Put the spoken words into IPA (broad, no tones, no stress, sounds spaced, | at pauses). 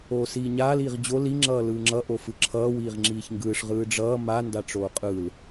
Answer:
oː s iː ɲ aː l iː ʁ d͡ʑ o l i ŋ͡ǁ ʌː l ɯː ŋ͡ǁ ʌ ʔ o f ɯ ǁʰ ʌː w iː ʁ ŋ͡ǁ iː ç ŋ ɡ ɯː ʂ ʁ ɯː ɖ͡ʐ ʌː m a n d a ʈ͡ʂ oː qʼ ɯː l